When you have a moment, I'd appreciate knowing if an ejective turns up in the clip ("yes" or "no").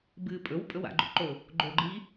yes